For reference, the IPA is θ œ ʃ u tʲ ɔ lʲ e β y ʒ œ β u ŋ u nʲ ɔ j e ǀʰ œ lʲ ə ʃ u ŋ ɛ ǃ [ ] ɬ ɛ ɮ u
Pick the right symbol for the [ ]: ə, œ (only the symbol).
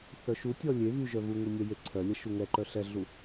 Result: œ